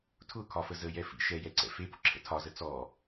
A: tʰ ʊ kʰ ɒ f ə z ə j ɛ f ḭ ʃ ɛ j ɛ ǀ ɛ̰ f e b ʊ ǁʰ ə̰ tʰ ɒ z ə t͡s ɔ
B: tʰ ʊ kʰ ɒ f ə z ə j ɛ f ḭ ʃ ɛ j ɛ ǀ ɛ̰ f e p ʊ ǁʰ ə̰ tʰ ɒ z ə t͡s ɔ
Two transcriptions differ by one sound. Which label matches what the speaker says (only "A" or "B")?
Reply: B